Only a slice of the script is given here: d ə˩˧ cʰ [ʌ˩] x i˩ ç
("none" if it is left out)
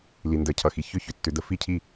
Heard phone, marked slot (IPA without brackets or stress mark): ʌ˩